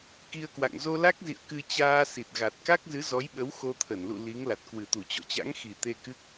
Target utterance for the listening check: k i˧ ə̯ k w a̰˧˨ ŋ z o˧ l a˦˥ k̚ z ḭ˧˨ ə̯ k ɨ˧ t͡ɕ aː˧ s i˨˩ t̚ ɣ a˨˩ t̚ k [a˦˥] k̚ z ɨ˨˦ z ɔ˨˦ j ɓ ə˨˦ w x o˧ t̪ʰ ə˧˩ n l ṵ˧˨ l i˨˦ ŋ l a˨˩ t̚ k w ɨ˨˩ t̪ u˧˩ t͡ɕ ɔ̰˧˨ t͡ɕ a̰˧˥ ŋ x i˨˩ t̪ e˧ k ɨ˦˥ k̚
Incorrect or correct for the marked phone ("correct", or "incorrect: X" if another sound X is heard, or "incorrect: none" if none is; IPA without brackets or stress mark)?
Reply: correct